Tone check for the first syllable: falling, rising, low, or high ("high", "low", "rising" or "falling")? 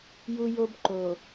high